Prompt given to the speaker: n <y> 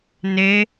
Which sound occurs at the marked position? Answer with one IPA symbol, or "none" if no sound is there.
e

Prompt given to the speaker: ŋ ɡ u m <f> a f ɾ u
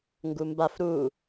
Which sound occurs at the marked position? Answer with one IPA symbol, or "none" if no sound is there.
b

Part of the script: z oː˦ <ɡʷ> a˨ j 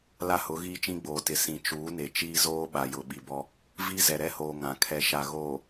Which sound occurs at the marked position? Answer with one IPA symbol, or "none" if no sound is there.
ɓ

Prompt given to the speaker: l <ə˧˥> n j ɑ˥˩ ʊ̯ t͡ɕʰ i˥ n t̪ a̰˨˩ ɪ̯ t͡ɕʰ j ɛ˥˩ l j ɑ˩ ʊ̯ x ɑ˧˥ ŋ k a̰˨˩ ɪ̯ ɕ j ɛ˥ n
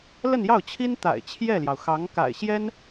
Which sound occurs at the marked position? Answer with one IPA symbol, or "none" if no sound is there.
ə˥˧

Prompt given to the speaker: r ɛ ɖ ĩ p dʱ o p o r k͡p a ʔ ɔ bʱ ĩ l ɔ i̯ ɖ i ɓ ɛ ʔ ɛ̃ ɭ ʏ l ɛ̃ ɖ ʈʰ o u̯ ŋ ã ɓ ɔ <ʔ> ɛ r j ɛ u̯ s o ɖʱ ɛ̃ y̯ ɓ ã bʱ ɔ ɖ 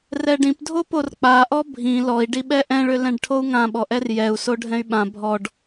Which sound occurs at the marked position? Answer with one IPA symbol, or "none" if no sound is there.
ʔ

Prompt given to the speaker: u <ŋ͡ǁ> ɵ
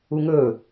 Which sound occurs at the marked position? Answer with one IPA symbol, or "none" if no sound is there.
ŋ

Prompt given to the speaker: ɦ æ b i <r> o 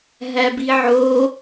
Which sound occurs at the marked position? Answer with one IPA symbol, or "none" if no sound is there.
ʕ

